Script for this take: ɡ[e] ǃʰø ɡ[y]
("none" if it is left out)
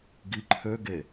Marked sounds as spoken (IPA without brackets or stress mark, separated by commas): i, e